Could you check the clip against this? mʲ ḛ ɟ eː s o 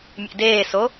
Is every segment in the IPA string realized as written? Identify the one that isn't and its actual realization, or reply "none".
ɟ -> d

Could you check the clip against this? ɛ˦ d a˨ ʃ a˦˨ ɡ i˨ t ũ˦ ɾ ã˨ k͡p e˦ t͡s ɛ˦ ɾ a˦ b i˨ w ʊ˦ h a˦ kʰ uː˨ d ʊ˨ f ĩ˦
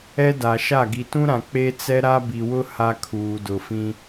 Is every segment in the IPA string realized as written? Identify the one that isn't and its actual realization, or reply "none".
none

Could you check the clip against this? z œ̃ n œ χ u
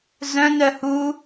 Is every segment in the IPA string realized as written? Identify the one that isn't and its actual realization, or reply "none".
χ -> h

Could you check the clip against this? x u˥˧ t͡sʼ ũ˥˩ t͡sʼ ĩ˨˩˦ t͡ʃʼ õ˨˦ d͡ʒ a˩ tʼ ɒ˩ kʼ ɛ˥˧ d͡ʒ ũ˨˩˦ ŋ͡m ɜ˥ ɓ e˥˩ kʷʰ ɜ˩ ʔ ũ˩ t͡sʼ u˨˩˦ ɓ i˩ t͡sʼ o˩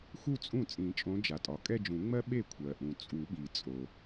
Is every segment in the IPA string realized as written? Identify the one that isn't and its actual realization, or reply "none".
none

